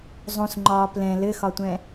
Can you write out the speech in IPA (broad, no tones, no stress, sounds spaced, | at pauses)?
zˤ ũ s ŋ͡ǃ ɒː p l ɛ̃ l ɘ x ɒ tʷ ɛ̃